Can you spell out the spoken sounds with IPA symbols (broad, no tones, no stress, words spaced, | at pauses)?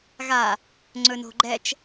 ɣa | ŋ͡ǀɵno̤ɡ͡ǃɛt͡ʃ